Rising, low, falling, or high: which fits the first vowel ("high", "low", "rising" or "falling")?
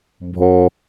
high